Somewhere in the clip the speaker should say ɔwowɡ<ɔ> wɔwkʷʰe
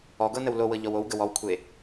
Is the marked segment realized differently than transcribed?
yes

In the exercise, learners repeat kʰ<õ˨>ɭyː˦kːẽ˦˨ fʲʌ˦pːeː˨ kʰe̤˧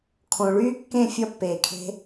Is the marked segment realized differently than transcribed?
no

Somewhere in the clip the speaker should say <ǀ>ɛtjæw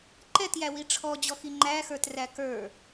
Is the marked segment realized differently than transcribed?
yes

